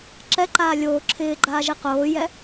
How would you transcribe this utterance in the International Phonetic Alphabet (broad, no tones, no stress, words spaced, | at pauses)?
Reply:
ǁɛǃaː lʲoː ǁʰɪːɡ͡ǃaːʒi qoːjɛ